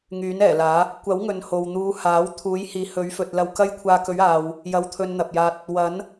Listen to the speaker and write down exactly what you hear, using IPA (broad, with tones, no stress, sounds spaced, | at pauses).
ŋ yː˨˥ n ɛː˨˩ l aː˨˥ | kʷ ɐ˨˥ w ŋ ɵ˨ n h o˨ w n̪ uː˨˧ h aː˨˥ w t̪ʰ uː˨˥ j h iː˨˥ h ɵ˨˥ ɥ f ɵ˨ t̚ l ɐ˧ w k ɐ˥ j kʷʰ aː˧ k ɵ˨˥ ɥ aː˨ w | j ɐ˧ w t̪ʰ ɵ˧ n n̪ ɐ˨ p̚ j aː˧ t̚ | w ɐ˨˥ n